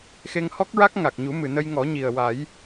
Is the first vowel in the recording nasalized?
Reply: no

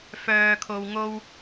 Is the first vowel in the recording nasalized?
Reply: no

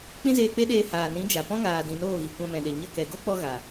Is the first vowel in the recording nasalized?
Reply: yes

